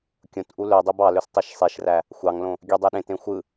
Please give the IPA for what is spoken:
kʲ õ t ʔ u l ø dˤ i b ɑ l ø s tˤ i ʃ sˤ i ʃ r æ | xʷ ɑ ŋ l õ | ɡʲ ø dˤ e ɗ ẽ t ẽ xʷ ɯ

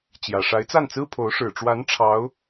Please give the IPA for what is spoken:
t͡ɕ j ä˨˩ ʂ a˧˥ ɪ̯ t͡s a˥˩ n t͡s ɹ̩˥ pʰ o˧˥ ʊ̯ ʂ ɻ̩˨˩ ʈ͡ʂ w a˧˥ n ʈ͡ʂʰ ɑ˧˥ ʊ̯

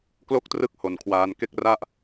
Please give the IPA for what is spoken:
k l o˥˩ k̚ t r ɯ˦˥ k̚ h o˧ n kʰ w aː˦˥ n k e˥˩ k̚ r a˥˩ ʔ

